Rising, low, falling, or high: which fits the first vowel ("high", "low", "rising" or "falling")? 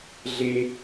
low